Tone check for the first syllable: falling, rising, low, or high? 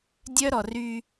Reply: high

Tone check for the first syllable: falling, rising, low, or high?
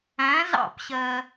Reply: rising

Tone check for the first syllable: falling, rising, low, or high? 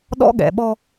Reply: high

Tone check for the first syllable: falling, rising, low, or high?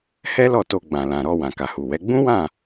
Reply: high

